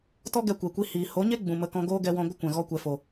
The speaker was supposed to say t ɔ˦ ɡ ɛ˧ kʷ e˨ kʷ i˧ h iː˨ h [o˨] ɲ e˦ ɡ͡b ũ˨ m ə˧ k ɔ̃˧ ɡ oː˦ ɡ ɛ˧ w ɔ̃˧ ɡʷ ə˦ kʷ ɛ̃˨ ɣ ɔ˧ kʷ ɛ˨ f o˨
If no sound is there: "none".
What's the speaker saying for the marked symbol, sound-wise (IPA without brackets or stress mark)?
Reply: o˨˦